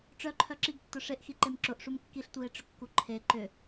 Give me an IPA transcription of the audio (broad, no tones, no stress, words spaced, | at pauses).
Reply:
ʈ͡ʂœǃʰœ ǁiɡtːʊ ʂeʔxiǃem ǁʊʔʂum kːiɬtʷie̯ʈ͡ʂʏkːu ǃʰe ǃʏ